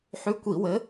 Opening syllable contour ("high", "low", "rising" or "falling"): rising